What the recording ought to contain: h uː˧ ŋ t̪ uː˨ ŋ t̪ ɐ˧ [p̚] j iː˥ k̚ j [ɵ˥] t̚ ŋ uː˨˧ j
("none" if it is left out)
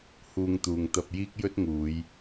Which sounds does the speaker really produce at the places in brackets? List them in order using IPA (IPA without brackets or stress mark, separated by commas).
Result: p̚, ɵ˥